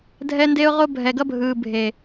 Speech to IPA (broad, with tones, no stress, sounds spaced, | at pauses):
dʱ ɛ˦ n d e˦ ʊ̯ ʁ o˦ bʱ ɛ˨ ɡ ʌ˦ bʱ ɯː˨ bʱ e˨